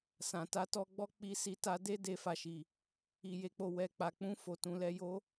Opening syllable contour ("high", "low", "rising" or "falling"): low